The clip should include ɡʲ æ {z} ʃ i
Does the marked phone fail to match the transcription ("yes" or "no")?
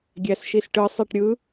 yes